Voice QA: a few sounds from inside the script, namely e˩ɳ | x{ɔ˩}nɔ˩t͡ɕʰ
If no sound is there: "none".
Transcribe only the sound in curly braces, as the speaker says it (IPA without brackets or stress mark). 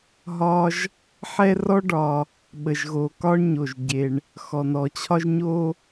ɔ˩